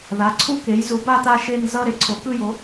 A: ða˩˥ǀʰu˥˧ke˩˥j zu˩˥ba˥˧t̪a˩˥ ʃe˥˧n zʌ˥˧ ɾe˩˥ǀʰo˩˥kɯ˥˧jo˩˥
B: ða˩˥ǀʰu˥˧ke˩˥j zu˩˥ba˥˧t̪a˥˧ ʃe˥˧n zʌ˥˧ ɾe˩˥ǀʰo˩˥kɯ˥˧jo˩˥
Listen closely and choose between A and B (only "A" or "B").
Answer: B